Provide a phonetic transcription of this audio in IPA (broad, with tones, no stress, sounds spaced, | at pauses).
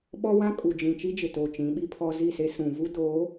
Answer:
ɓ ɔ˦ w ã˦ kʼ u˨ d͡ʒ ĩ˨ t͡ʃ i˦ d͡ʒ ɪ˨ t oː˨ t͡ʃ ĩ˨˦ ɓ i˦ pʰ ɔ˦ z i˦˨ s e˦ s ũ˨ v u˦ d oː˨˦